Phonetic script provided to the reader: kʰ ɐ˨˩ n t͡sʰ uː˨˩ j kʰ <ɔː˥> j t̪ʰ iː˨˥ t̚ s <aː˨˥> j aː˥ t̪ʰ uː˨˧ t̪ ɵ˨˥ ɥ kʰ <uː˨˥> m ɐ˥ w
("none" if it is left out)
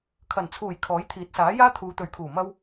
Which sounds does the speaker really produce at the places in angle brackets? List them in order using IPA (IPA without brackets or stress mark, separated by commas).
ɔː˨˥, aː˨˥, uː˨˩